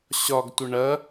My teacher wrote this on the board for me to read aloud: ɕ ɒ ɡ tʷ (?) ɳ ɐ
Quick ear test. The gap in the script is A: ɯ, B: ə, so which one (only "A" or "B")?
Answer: B